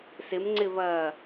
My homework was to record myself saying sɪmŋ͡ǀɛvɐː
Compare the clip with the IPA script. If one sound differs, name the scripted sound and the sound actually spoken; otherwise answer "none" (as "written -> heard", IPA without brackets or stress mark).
ɛ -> ɪ